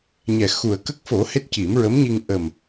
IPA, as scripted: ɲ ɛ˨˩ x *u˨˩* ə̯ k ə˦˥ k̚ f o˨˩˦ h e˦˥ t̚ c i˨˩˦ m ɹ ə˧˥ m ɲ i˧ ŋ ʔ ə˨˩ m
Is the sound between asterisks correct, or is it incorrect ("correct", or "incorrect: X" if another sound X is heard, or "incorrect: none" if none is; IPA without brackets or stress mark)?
correct